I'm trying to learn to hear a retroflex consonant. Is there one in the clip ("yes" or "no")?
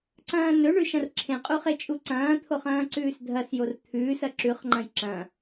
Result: yes